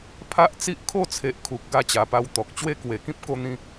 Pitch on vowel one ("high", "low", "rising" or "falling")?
high